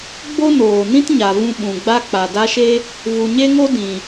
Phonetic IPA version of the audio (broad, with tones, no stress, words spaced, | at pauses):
ɡ͡bo˦noː˨nĩ˦t ɲa˨vũ˧ ɓũ˨ɡ͡ba˦ k͡pa˨da˦ʃe˦ | vu˨ɲe˦ŋo˦ dĩ˨